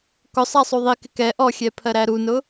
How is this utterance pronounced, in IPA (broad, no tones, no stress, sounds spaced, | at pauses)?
k ʊ sˤ æ sˤ u ðˤ i k ɪ k ɛ ʔ ɔ xʲ ɛ pʰ ɜ ɾ æ ɾ u n ʊ